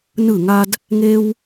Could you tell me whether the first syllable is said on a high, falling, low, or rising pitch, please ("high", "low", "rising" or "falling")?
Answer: falling